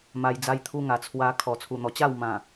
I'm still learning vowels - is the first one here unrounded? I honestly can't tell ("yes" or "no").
yes